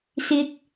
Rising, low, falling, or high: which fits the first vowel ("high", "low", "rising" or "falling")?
low